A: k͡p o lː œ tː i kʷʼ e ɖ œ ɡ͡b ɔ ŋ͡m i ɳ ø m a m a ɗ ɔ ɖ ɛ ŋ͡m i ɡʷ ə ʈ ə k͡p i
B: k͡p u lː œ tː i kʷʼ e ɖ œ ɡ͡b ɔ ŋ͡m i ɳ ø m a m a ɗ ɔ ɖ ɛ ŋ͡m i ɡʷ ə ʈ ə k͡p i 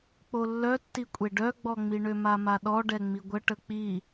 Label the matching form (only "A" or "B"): A